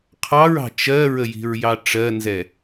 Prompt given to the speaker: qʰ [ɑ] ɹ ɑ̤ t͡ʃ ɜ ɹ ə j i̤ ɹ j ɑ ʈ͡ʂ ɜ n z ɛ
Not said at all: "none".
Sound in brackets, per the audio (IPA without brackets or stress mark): ɑ